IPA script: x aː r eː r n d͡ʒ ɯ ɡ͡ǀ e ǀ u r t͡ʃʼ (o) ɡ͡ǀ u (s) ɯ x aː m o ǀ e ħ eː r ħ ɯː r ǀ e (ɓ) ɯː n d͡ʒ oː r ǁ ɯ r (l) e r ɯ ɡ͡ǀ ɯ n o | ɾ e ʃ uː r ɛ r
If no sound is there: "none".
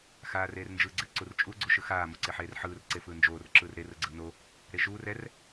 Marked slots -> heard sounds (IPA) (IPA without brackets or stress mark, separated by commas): u, ʃ, f, ɾ